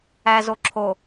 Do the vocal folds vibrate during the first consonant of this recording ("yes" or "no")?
yes